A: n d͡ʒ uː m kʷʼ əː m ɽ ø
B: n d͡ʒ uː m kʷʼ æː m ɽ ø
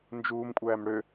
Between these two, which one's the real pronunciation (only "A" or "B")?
B